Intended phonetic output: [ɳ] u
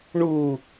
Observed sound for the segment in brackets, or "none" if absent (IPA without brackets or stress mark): ɳ